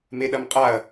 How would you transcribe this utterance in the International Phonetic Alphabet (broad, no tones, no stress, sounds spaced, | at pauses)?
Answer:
m e ɗ ɐ m qʼ a ɐ̯